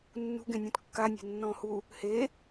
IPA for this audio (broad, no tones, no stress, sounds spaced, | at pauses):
nː ṳ ɡ ẽ nʲ ũ t kː a nʲ e̤ nː ɔ̃ː h u | h e